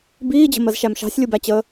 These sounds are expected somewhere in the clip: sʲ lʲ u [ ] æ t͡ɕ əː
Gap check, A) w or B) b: B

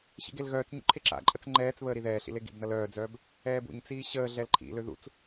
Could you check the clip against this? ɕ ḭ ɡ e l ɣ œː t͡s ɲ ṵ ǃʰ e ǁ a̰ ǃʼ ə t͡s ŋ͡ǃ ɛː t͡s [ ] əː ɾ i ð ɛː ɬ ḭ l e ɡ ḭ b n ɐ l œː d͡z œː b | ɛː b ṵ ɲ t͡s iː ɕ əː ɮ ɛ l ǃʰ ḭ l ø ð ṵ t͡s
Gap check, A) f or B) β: B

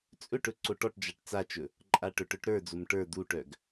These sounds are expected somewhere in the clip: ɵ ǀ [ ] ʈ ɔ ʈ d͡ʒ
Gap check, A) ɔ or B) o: B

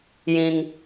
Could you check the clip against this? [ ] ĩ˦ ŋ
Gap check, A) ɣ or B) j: B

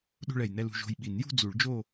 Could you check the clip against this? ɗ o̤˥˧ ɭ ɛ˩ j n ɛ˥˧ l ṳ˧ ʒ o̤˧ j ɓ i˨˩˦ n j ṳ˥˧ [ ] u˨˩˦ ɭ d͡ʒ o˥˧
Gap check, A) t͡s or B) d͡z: B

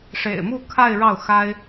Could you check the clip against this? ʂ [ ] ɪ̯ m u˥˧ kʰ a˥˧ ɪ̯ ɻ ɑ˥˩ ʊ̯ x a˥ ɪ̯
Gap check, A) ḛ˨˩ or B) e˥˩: A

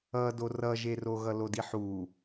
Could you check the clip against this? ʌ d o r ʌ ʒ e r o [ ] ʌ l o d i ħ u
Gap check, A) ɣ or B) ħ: A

